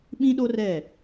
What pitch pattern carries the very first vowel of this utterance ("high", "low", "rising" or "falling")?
high